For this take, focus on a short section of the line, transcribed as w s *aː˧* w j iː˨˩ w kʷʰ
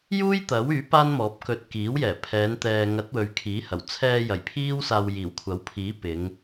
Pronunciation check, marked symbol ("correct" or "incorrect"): correct